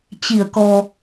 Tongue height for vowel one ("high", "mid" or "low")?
high